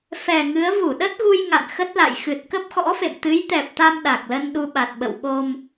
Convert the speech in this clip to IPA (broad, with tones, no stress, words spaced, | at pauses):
fɛ˨˩ŋɨ˨˦ə̯ vu˧˩ɗə˦˥t̚ɣu˧j ŋa̰˧˨nxə˦˥t̚la̰˧˨j xɨ˨˩t̚kə˦˥p̚xɔ̰˧˥fḛ˧˨m t̪ɨ˨˦jt̪ɛ˨˩p̚t̪a˧m ɗa˨˩k̚lə˧n ɗu˧ɓa˨˩t̚ɓə̰˧˨w ɓo˧m